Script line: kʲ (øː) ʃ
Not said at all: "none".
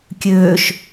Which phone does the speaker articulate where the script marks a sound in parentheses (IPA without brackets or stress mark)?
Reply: øː